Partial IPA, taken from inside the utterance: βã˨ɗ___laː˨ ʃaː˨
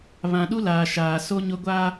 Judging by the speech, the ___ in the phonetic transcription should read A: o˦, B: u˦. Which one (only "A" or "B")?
B